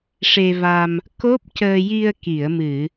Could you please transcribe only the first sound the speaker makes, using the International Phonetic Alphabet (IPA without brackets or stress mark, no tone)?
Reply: ʂ